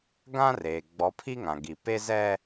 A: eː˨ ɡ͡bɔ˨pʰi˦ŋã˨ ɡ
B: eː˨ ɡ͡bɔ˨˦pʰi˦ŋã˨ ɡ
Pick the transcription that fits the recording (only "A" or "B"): B